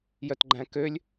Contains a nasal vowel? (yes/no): yes